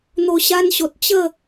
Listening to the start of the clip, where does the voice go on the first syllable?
low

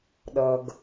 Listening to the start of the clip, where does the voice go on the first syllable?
low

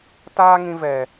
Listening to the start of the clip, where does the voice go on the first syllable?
high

